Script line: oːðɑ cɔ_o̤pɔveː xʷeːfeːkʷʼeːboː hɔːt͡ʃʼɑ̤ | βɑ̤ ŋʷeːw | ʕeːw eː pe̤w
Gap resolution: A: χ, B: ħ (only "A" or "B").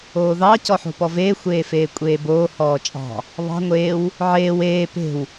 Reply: B